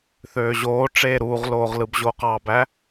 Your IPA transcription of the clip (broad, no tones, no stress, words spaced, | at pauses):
θøːʑoːʈ͡ʂeː ɾuːʁloːʁlɯb ʑoqɑbæ